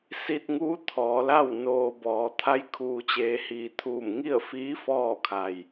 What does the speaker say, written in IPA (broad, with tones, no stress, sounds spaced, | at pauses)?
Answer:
s i˧ t̚ ŋ uː˧˥ t̪ʰ ɔː˩˧ l a˥˨ w n oː˧ b ɔː˩˧ t̪ʰ a˧˥ j kʰ uː˩ t͡ɕ eː˩˧ h iː˩ t̪ʰ uː˧˩ m ŋ i˥˨ ə̯ f iː˧˥ f ɔː˥˨ kʰ a˩ j